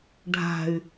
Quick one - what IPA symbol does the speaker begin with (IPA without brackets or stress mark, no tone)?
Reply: ɖʱ